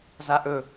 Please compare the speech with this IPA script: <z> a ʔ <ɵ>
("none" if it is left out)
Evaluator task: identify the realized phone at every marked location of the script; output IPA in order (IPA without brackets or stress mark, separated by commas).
z, ɵ